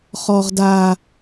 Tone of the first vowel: high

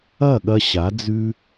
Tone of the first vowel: falling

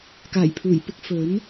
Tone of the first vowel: low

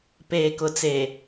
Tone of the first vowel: low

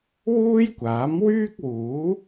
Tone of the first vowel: high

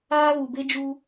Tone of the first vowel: high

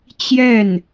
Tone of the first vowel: falling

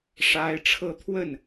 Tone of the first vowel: high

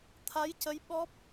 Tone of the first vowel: rising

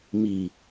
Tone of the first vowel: low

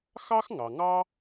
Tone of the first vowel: high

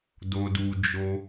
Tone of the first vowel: high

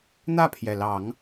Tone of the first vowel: falling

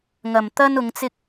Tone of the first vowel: low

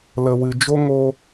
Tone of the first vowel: low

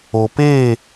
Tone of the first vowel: low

